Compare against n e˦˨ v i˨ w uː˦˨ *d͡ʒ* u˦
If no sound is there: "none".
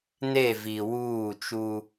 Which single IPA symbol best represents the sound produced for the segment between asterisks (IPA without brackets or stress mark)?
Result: t͡ʃ